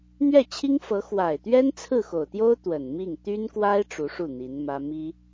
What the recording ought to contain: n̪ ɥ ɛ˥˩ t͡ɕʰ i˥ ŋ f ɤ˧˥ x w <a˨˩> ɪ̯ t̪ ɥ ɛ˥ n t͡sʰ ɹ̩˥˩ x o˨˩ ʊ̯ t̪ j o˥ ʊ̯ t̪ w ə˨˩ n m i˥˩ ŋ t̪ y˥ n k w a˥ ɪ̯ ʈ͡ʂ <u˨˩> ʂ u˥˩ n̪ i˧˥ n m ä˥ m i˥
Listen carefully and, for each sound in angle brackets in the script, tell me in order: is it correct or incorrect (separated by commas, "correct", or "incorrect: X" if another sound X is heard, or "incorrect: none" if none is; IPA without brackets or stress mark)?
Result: correct, incorrect: u˧˥